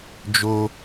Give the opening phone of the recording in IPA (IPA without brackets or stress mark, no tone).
d͡ʒ